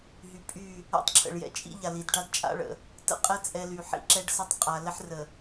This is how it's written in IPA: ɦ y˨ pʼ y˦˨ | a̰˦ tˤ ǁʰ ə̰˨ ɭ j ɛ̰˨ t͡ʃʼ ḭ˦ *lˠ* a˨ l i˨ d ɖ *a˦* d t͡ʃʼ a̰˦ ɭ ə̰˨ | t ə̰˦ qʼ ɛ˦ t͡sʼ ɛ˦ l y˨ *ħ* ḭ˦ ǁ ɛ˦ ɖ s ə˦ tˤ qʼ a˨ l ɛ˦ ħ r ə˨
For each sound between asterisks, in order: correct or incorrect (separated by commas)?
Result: incorrect, correct, correct